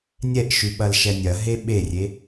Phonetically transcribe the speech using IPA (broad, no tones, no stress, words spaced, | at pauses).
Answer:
nʲɛʔʃʉ ɓɐlʃɛnʲɐ ɦeɓerʲe